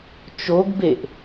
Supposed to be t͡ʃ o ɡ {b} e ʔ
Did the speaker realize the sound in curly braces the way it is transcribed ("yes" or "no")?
yes